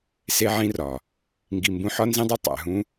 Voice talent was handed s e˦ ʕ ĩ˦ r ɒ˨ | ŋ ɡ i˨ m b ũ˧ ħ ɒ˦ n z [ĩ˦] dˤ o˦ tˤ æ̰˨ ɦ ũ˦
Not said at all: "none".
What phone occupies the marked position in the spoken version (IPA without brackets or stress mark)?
ĩ˦